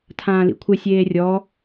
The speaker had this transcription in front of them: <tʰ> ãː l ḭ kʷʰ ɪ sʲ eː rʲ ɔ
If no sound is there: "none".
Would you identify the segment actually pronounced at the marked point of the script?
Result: tʰ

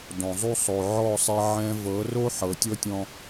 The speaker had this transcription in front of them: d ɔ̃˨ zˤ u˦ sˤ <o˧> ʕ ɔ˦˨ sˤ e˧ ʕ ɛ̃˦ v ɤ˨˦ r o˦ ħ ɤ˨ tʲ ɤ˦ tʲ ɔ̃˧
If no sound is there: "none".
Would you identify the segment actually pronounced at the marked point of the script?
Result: o˨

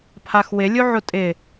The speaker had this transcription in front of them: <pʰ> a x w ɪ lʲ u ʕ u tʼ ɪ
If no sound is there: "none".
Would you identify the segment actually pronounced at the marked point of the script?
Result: pʰ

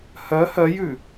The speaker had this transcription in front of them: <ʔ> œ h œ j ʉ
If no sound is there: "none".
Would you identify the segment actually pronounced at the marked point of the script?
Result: h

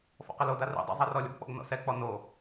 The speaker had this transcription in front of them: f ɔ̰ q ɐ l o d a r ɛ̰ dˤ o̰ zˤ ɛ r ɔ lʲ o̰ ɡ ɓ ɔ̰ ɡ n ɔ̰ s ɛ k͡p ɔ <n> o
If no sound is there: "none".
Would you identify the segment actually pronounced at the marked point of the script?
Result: n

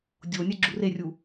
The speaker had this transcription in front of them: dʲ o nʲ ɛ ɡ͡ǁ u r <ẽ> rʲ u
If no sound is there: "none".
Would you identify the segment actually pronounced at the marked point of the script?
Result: e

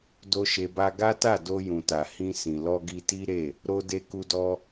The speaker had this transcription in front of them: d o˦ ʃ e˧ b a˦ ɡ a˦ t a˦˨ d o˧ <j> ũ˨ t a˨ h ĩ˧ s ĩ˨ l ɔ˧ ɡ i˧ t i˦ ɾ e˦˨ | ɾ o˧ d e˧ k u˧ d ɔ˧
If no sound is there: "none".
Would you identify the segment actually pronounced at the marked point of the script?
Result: j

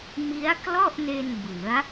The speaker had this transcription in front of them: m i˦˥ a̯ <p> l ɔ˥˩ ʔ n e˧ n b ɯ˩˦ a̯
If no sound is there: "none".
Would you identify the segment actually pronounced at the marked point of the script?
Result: k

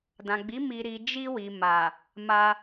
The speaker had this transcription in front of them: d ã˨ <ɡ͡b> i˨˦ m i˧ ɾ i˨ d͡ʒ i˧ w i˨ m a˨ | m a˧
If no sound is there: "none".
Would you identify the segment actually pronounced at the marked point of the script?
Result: ɡ͡b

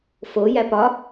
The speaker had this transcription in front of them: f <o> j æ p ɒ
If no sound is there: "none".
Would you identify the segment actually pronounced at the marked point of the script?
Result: o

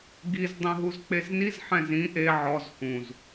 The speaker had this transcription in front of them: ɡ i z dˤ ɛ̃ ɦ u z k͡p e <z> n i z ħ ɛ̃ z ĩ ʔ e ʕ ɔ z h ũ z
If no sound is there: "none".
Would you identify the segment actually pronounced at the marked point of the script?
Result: z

